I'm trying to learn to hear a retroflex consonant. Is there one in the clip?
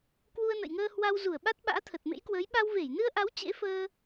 no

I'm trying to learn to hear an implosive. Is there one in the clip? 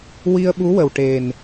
yes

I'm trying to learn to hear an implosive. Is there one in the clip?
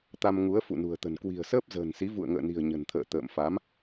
no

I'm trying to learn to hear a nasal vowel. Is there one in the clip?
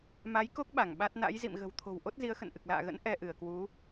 no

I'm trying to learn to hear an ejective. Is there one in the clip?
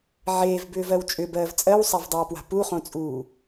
yes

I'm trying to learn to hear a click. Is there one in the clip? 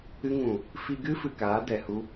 no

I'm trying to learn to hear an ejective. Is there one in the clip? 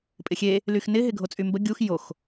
yes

